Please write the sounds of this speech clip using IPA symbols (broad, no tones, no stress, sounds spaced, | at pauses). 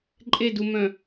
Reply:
ǃʼ e d u m œ̃